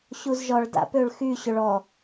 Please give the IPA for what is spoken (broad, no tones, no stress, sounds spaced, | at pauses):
ɕ u z ʒ ɔ ɭ d a̰ p ø ɭ x y ɕ ʏ ɭ ɔ